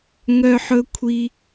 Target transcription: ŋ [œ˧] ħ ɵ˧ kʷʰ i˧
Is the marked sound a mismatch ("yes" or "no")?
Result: no